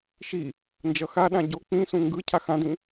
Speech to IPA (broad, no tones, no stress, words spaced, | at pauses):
ʃi | nd͡ʒʌxaɗã ɟo k͡pĩsũ ŋɡɯ cʰaxãdĩ